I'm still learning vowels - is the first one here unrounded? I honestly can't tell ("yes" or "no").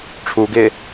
no